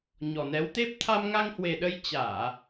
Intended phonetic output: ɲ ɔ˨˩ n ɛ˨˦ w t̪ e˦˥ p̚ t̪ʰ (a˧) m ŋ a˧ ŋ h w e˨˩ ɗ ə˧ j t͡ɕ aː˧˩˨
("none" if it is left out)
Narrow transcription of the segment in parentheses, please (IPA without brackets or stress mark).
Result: a˧